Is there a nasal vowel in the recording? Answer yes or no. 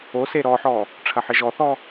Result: no